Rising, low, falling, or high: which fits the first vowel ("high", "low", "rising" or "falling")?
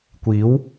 rising